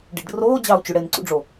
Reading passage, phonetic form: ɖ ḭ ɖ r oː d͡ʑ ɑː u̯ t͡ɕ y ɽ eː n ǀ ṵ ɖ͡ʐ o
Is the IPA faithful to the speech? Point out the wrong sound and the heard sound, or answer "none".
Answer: none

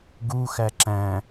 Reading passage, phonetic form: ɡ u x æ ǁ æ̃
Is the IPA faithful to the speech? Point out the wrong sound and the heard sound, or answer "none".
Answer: none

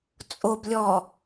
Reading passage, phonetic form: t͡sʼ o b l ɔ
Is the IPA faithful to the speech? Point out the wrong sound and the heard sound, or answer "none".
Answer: l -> lʲ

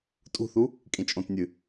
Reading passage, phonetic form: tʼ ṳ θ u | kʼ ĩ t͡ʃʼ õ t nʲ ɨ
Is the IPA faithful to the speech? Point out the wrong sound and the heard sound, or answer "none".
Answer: none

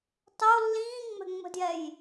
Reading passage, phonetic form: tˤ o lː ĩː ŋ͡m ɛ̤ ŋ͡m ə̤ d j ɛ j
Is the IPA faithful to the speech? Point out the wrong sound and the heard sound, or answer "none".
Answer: none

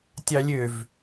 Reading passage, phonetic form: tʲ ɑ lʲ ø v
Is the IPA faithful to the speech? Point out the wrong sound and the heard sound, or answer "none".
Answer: none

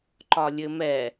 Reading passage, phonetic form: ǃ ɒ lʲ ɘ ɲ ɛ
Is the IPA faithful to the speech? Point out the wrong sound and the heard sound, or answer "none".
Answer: ɲ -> m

